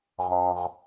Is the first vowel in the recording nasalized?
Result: yes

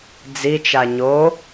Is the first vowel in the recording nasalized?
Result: no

